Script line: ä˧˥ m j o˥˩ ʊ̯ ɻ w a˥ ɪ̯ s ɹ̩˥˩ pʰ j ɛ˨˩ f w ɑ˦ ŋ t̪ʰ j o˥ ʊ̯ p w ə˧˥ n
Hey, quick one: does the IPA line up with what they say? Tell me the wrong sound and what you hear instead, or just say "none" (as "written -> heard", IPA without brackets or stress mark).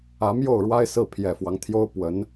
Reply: none